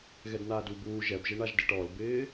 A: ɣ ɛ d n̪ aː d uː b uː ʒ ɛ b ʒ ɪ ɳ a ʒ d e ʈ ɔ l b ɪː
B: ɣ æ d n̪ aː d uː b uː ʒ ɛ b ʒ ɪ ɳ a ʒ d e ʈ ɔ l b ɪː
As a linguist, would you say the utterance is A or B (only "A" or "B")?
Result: A